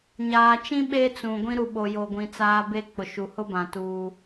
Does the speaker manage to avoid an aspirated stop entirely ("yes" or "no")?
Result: yes